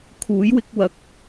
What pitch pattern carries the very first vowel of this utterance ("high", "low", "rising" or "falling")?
rising